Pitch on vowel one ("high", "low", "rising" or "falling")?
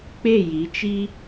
falling